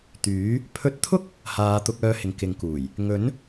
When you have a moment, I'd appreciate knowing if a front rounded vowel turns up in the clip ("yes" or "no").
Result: yes